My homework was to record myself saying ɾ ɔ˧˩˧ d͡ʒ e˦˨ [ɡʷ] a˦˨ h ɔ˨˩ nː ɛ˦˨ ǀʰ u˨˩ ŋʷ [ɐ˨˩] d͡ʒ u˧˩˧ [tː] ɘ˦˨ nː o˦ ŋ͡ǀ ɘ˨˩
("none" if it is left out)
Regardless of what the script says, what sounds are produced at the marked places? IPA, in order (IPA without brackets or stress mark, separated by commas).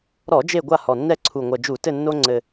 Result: ɡʷ, ɐ˨˩, t